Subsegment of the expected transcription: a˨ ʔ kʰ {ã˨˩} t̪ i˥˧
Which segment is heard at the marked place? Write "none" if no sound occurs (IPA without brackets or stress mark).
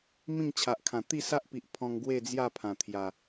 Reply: ã˨˩